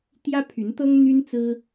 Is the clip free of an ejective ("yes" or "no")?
yes